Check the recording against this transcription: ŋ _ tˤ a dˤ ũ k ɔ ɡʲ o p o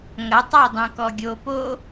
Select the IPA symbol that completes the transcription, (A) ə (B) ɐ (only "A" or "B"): B